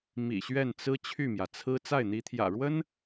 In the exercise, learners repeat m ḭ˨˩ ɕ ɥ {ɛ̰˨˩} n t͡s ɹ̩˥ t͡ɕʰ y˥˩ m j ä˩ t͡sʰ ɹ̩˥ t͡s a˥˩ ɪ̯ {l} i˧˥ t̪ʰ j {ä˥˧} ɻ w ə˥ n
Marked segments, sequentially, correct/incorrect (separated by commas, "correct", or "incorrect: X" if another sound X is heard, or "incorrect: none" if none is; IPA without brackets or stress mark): incorrect: ɛ˥˩, incorrect: n̪, incorrect: ä̰˨˩